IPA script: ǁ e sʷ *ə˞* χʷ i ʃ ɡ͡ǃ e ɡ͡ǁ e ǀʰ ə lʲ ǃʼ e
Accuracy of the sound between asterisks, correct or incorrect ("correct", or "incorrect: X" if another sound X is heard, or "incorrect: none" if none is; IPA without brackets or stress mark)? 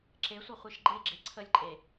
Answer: incorrect: ʌ